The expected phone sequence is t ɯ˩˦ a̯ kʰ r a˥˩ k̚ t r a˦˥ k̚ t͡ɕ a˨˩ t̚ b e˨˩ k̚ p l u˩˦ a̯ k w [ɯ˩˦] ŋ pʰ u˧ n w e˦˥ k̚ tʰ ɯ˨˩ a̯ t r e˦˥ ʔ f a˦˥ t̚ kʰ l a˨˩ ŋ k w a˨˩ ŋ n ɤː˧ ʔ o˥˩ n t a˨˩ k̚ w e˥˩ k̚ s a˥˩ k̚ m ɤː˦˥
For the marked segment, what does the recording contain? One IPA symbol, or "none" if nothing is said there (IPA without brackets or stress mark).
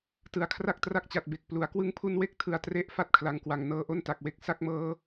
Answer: ɯ˧